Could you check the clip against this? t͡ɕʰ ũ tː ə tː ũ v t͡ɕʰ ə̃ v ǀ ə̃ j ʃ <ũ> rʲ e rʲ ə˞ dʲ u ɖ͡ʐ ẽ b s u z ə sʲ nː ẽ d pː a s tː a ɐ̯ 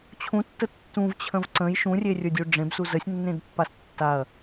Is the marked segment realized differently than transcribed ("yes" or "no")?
no